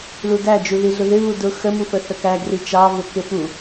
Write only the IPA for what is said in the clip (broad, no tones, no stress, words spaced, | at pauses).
ludæ d͡ʒuðiɮʊðɪ βudʊ xəmufə θəkæ ɡrit͡ʃɑvʊ kɪfu